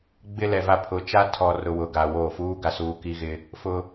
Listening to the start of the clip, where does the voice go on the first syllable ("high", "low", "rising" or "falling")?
high